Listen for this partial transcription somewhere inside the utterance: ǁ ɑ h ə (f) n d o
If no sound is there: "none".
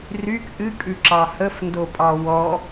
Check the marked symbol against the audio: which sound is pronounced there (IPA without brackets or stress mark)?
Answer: f